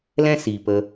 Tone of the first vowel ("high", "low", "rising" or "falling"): high